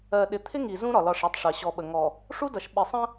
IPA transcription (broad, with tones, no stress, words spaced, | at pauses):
ɜ˨ɗɪ˨t̪ʰɪ˦ŋi˨ zũ˦ ɾɒ˨lɒ˦˨ʂæ˦tˤʂɜ˨ ɕɔ˨ɓə˨ŋɔ˨ | ʂu˦dʌ˨ʃ ɓɪ˨sˤə̃˦